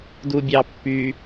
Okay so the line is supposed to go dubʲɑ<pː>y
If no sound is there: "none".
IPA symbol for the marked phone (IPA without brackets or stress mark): pː